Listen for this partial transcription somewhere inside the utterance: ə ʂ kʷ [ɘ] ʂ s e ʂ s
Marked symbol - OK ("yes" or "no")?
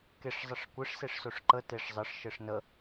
yes